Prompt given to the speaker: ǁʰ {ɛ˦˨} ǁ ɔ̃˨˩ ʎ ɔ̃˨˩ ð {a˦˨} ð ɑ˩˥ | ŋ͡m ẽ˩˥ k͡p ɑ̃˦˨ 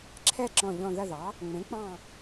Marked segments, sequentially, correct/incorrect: correct, incorrect: ɐ˦˨

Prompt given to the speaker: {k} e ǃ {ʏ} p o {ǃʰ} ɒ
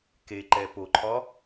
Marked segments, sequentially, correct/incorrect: correct, incorrect: ɛ, correct

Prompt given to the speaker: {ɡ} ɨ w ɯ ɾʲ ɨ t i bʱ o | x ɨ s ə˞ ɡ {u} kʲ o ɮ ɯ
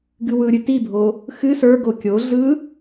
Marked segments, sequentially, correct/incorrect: correct, incorrect: o

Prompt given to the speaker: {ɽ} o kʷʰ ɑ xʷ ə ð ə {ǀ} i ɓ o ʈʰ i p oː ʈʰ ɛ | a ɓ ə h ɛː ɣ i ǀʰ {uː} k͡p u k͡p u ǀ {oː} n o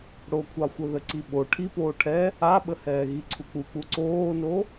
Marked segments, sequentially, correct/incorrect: correct, correct, incorrect: u, correct

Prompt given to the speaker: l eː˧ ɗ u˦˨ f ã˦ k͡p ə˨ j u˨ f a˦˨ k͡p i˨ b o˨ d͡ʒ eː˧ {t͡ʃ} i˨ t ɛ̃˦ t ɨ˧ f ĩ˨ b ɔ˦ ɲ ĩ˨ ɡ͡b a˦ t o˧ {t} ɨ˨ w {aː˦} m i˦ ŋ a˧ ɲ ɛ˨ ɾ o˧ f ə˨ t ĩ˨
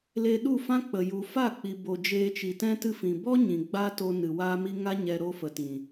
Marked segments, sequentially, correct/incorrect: correct, incorrect: n, correct

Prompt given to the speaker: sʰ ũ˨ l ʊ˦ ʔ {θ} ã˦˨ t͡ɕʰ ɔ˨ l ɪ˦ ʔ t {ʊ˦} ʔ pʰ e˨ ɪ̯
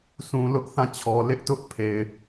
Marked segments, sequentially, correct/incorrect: correct, correct

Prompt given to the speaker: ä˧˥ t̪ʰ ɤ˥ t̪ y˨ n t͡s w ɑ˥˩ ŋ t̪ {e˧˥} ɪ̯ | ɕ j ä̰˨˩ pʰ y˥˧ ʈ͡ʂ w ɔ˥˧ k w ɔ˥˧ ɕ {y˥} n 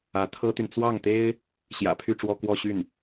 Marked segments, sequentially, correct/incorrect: incorrect: e˥, incorrect: y˥˩

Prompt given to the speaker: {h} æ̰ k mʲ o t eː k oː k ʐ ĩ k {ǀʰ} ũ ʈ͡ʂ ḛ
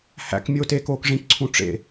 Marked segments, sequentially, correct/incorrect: correct, correct

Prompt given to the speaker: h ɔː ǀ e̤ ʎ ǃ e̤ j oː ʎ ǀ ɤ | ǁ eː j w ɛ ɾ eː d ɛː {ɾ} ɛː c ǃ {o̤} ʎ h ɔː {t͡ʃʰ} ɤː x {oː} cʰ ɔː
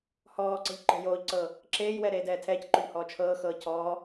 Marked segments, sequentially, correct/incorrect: incorrect: tʰ, incorrect: o, correct, incorrect: ɤː

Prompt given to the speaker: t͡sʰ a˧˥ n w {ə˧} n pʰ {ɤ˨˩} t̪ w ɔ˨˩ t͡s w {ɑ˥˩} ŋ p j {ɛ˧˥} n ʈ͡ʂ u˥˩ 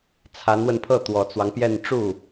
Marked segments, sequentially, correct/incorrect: correct, incorrect: ɤ˥˩, incorrect: ɑ˦, incorrect: ɛ˥˧

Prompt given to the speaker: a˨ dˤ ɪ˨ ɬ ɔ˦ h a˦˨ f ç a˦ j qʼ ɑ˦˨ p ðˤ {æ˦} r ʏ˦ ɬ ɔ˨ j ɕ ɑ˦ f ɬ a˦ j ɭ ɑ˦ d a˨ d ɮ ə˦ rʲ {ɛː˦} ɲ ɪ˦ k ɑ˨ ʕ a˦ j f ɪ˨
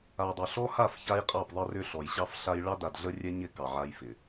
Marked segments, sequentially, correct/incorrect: incorrect: ə˦, incorrect: ɛ˦

